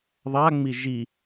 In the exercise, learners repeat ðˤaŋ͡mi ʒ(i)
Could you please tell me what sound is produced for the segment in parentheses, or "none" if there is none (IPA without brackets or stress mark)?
i